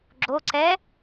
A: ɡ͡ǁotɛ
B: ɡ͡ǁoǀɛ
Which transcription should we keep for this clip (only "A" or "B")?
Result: B